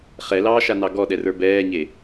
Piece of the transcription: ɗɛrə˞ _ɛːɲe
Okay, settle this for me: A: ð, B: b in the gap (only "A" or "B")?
B